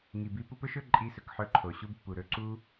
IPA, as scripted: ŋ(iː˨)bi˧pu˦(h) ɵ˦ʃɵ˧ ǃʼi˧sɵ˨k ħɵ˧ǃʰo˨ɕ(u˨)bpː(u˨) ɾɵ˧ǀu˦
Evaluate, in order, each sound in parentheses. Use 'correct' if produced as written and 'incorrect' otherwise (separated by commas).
incorrect, incorrect, incorrect, correct